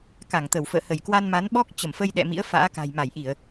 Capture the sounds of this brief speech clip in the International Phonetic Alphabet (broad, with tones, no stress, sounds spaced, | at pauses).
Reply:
k a˧˩ ŋ t̪ ə˧˩ w f ə̰ː˧˨ h ə˧˩ j k w a˧ n m a˨˦ n ɓ ɔ˦˥ k̚ t͡ɕ ə˧˩ m f ə˧ j ɗ ɛ̰˧˨ m ḭ˧˥ ə̯ f a̰ː˧˥ k a̤˨˩ j m a˧˩ j ʔ i˧˩˨ ə̯